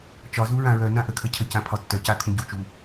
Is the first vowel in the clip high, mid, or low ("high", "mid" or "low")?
low